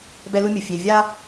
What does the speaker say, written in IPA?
b ɛ˦ l u˦ mʲ ɯ˨ fʲ e˨ vʲ a˦

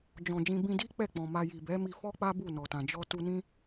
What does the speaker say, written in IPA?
d͡ʒ ɔ̃˨ d͡ʒ ĩ˧ b ĩ˧ d i˦ k͡p ɛ˦˨ k͡p ɔ̃˨ m a˧ j i˨ b ɛ˨˦ m i˧ f ɔ˦ k͡p a˦ b u˦˨ n ɔ˨ t ã˨ d͡ʒ ɔ˧ t u˧ n ĩ˦

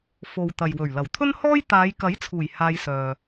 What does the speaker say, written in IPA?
f o˨ w t̪ ɐ˨ j w ɵ˨˩ ɥ l ɐ˨˩ w t̪ʰ ɵ˥ n h ɔː˥ j t̪ aː˨˧ j k ɐ˨˥ j t͡sʰ uː˨˩ j h aː˧ j s œː˨

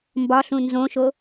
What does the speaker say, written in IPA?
m b ɒ ɬ ũ n z õ ʃ o

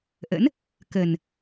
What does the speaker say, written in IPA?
ʔ ə̰˧˥ n | k ə˨˩ n

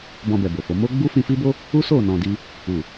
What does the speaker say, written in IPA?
b ɔ̃˧ b ɛ˨ b o˨ f o˨˦ m o˦ ɡ͡b u˦ f ĩ˧ f i˦ b o˦ | u˦ s o˦˨ n ɔ̃˧ d i˦ | u˨

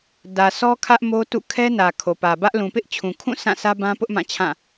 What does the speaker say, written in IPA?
d ä˨ s ɔ˦ kʰ ä˦ ʔ m o˦ t ṵ˦˨ kʰ ɛ˦ n ä˨ kʰ o˨ p ä˨ b ä˦ ʔ l ũ˨ p ɪ˦ ʔ t͡ɕʰ ũ˨ kʰ ũ˦˨ s ã˦˨ s ä˦ b ã˦ p ʊ˦ ʔ m ã˦˨ t͡ɕʰ ã˦˨

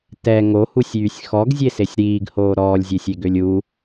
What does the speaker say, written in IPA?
t ɛ ŋ o h u sʲ yː sʲ x ɔ ɡ zʲ e s e sʲ ɾ iː ɡ h oː ɾ ɔː lʲ zʲ e sʲ e ɡ ø lʲ u

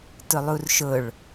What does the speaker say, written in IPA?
t ʊ lˠ u r ʃ ʊ ɭ

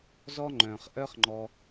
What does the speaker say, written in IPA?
z ɔ˦ ŋ͡ǃ œ̃ː˩ χ ʔ œ˦ χ ŋ͡ǃ ɔ˨

